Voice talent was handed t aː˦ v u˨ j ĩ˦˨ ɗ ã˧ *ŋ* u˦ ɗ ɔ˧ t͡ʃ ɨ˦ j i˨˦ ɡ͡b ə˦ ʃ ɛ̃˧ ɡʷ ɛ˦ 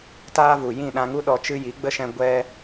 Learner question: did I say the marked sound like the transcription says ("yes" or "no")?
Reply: yes